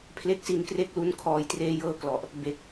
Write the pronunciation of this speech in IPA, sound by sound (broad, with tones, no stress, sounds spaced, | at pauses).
pʰ l e˥˩ k̚ s i˧ n k r e˦˥ k̚ l u˦˥ n kʰ ɔː˨˩ j t r eː˧ j ɤː˧ k l ɔ˨˩ ʔ | b e˨˩ k̚